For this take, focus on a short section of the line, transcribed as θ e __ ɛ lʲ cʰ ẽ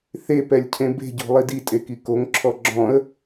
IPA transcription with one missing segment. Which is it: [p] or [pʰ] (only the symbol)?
p